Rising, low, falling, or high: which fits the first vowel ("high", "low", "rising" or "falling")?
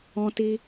high